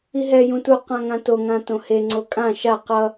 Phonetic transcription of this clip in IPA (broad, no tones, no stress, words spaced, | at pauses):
iɦɛ jũtu qãŋãto ŋãtõhe ŋ͡ǀokʼã ʃa qʌ